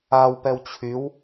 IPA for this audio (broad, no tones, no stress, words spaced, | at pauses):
awpɛw t͡ɕʰyw